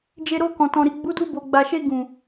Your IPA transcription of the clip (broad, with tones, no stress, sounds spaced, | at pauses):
d͡ʒ e˧ ɾ o˧ k ɔ̃˨ t ɔ̃˨ ɾ i˨ ɡ͡b u˨˦ d u˧ b o˨ ɡ͡b a˨ ʃ e˧ ɡ ũ˨